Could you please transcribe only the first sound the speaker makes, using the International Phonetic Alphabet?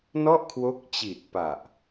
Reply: n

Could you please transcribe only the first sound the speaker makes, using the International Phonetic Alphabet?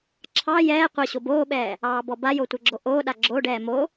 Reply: ǁʰ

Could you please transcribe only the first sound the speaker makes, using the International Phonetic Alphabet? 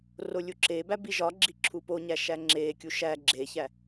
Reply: r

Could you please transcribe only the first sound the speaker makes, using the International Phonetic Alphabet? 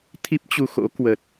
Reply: t̪ʰ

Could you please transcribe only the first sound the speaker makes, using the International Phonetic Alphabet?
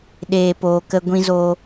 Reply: ɗ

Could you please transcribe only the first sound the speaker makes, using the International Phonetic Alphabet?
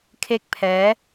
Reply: kʰ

